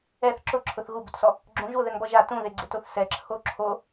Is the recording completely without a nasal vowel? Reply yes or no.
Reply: no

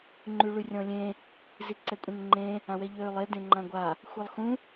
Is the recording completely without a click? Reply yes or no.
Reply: no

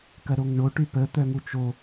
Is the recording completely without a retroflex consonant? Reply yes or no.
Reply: no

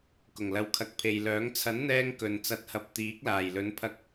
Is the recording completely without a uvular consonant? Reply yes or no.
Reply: yes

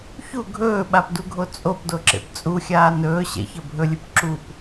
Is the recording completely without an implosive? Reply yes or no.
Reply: no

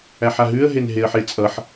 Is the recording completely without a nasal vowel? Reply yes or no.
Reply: yes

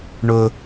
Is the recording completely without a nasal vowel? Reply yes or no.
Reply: yes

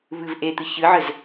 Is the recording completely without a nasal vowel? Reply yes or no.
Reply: yes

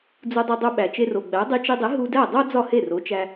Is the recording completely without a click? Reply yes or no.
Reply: yes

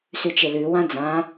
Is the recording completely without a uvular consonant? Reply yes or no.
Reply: yes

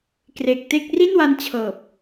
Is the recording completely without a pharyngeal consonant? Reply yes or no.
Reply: yes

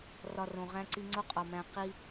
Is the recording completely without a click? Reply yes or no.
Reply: no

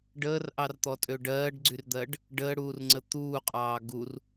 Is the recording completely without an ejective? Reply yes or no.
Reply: no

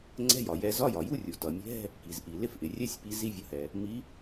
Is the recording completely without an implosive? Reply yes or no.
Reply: yes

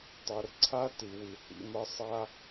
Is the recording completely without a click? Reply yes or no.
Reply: no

